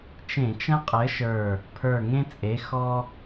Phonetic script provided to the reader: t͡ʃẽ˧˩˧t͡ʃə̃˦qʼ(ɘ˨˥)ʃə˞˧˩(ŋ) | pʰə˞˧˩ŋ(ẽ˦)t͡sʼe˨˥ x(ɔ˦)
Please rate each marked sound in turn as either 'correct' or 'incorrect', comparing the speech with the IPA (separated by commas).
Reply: correct, incorrect, correct, correct